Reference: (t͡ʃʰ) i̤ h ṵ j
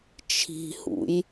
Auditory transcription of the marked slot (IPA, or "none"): t͡ʃʰ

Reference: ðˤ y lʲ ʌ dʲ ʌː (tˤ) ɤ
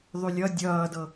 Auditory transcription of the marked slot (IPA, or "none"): d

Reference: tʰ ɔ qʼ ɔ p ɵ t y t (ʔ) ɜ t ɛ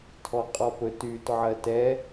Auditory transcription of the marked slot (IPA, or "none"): ʕ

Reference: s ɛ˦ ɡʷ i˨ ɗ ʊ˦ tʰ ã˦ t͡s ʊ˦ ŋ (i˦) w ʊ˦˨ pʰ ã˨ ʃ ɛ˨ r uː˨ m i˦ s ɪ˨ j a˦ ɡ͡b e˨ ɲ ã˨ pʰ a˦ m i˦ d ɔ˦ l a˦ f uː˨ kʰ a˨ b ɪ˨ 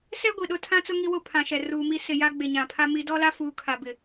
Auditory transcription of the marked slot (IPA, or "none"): i˦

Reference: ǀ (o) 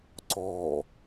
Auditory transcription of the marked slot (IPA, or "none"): ɔ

